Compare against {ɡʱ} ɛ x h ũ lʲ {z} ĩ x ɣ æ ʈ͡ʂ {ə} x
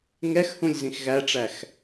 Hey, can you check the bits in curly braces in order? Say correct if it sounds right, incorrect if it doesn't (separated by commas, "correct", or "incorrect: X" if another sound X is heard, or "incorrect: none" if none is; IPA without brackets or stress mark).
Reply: incorrect: ŋ, correct, incorrect: æ